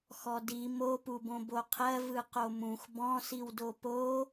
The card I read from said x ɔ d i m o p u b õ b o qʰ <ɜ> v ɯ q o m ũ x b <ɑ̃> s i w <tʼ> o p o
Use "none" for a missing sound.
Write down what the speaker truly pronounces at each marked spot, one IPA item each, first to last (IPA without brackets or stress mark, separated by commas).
ɜ, ɔ̃, d